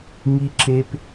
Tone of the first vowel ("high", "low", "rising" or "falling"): high